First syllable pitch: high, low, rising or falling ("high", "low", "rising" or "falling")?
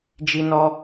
high